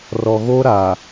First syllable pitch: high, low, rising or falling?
low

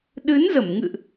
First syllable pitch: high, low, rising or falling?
rising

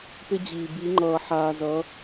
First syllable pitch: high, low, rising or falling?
high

